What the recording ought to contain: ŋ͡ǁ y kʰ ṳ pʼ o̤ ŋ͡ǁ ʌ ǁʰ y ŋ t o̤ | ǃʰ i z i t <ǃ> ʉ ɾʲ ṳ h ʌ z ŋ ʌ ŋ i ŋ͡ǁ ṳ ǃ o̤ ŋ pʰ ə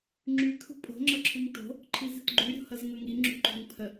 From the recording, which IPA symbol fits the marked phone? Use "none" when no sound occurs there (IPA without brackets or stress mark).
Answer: ɡ͡ǃ